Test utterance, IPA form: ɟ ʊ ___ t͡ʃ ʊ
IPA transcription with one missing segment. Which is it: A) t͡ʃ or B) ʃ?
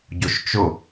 B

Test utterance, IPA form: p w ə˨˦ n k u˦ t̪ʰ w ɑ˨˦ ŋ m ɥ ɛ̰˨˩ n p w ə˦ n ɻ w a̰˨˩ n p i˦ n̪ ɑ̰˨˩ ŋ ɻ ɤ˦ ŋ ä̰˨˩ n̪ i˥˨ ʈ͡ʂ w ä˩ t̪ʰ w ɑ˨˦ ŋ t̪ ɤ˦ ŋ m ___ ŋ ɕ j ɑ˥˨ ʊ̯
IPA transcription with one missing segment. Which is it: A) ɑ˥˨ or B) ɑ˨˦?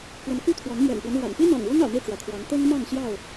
A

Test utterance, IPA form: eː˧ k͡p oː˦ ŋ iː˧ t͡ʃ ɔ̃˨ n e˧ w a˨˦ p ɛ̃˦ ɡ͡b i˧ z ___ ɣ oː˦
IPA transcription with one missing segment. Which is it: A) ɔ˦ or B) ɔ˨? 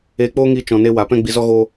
A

